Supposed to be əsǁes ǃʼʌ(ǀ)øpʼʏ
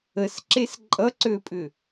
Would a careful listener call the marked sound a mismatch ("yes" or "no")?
no